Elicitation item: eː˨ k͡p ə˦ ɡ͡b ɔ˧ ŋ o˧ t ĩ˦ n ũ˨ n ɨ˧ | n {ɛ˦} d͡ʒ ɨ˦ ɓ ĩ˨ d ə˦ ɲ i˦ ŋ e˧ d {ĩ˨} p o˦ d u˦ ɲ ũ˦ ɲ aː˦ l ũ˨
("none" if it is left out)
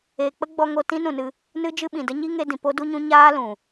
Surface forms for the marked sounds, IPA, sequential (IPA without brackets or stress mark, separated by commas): ɨ˦, ĩ˨